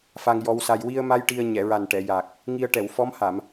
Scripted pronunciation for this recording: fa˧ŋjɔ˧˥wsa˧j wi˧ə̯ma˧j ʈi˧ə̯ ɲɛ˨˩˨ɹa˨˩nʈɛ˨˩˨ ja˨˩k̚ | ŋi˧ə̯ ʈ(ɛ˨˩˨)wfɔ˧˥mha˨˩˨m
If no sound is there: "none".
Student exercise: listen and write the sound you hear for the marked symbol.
ɛ˨˩˨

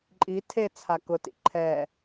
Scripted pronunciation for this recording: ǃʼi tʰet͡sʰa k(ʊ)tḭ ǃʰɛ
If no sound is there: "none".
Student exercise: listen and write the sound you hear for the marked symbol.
ʊ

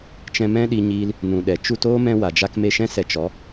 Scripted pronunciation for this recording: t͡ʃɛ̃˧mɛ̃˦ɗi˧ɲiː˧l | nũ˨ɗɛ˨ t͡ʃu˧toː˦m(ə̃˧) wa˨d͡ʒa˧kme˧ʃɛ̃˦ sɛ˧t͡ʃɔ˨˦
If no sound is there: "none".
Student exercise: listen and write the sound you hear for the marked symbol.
ɛ̃˧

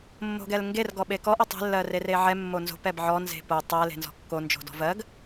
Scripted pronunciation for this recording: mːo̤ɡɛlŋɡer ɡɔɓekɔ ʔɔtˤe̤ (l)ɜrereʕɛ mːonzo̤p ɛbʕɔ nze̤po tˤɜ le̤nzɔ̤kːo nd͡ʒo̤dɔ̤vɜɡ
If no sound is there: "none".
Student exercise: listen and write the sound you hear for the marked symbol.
lː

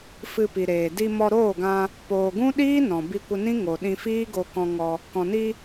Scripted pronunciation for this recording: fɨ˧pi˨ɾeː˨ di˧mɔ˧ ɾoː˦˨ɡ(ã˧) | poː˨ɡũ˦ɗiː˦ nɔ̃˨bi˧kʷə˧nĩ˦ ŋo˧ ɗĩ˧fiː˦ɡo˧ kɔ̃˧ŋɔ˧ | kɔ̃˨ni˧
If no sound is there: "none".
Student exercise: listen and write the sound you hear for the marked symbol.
ã˧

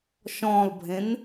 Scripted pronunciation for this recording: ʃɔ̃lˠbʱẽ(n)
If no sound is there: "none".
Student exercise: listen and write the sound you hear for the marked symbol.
n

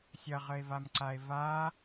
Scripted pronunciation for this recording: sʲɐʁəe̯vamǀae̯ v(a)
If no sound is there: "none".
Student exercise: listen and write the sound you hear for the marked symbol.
a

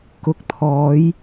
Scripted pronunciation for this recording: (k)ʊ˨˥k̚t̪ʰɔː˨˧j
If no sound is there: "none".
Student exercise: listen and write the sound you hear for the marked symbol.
k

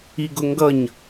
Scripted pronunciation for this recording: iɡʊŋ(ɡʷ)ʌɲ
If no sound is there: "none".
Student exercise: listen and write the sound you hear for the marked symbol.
ɡ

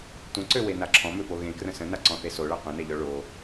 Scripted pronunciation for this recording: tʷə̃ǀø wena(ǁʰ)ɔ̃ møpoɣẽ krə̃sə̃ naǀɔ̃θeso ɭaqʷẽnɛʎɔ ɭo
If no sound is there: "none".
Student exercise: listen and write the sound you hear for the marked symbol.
ǁʰ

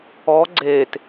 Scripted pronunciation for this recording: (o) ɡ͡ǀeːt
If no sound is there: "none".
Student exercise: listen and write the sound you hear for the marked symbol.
ɔ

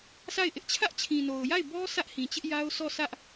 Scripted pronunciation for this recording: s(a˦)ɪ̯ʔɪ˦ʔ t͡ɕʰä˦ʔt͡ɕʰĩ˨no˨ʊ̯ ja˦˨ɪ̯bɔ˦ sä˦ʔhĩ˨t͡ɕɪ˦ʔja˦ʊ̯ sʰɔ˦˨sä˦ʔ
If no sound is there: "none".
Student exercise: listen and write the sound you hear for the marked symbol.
a˦˨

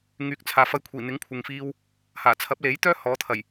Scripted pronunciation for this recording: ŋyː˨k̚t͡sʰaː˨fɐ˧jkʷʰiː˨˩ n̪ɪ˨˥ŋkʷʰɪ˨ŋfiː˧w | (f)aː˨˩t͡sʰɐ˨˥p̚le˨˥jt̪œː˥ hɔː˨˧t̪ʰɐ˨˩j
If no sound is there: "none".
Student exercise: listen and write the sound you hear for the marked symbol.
h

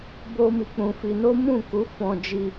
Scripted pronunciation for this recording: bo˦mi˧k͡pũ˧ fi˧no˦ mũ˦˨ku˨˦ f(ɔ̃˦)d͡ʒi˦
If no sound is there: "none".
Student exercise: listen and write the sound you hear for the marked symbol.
ɔ̃˦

